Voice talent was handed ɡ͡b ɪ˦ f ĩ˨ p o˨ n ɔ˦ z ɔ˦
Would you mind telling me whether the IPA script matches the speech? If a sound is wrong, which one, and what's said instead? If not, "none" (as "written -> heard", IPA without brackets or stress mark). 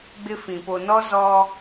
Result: none